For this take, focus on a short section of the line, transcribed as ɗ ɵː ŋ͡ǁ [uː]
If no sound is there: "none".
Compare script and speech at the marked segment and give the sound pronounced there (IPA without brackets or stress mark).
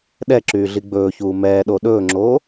oː